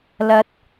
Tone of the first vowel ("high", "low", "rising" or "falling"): rising